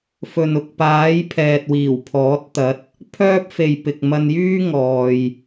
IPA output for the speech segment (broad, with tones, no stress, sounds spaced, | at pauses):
f ɵ˨ n ʊ˨˥ k̚ p aː˨˥ j pʰ ɛː˨ t̚ w iː˨˩ w pʰ ɔː˨˥ t̚ t̪ ɐ˨˥ t̚ | pʰ œː˥ p̚ f e˨ j p ɪ˨ k̚ m ɐ˧ n j yː˥ ŋ ɔː˨ j